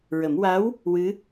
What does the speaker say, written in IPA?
ɹ ə˨˩˦ m w a˧˥ w | w ɨ˧˥

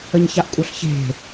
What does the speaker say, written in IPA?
ə ɲ ç a ʔ kʷʼ œ ɬ ç e̤

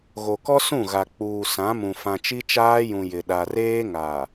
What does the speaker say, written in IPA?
ɣ o˨ k ɔ˦ s ũ˦˨ ɣ a˨ k͡p uː˨ s ã˨˦ m ũ˨ f ã˨ t͡ʃ i˦ t͡ʃ aː˦ j ũ˨ j ɪ˨ ɗ a˨ r eː˦ ŋ a˨

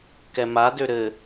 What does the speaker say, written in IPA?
k ɛ m a d ø ɾ ɘ

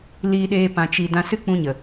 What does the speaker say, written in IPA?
l iː˧ ɗ eː˧ p ã˧ t͡ʃ i˧ d ã˧ s ɨ˦ k͡p ũ˧ ɲ ə˨

